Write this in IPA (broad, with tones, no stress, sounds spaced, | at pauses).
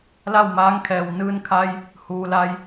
l a˥˨ w m aː˧˥ ŋ kʰ ɛː˩ w n ɯː˧ n kʰ a˧ j | h uː˩ l a˧ j